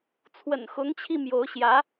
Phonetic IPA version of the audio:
t͡sʰ w ə̰˨˩ n x ʊ˧˥ ŋ t͡ɕʰ i˧ m j o˧˥ ʊ̯ ɕ j ä˧˥

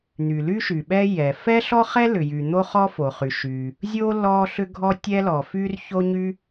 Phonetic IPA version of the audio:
n̪ y˩ l y˥ ʃ y˩ ɓ ɛ˥ j ɛ˩ f ɛ˥ ɬ ɔ˥ χ ɛ˥ l ʏ˩ j y˩ n̪ o˥ χ ɔ˥ f o˩ χ y˩ ʃ y˩ | zʲ o˥ l ɔ˥ ɬ ʏ˥ ɡʱ ɔ˥ tʲ ɛ˥ l ɔ˩ f y˥ r ç o˥ ɲ y˥

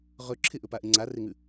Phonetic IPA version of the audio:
ʁ ɵ ǁʰ ɪ ʔ ɵ p a ʔ ɪ ŋ͡ǀ a r e ŋ ʉ

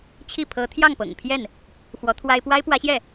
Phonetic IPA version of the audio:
t͡ɕʰ i˥˩ pʰ ɤ˧˥ t̪ʰ j ɑ˥˩ ŋ p ɤ̰˨˩ ŋ pʰ j ɛ˥˩ n | x w ɔ˧˥ t̪ʰ w a˥ ɪ̯ p w a˥ ɪ̯ p w ä˧˥ ɕ j ɛ˥˩

